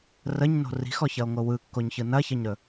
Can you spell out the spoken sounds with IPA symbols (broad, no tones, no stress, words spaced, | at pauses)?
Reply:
rəɲno̤ ri̤xɔçɐo̯ŋo wɯkːoɲçɯ nɐçɐɲɾɵ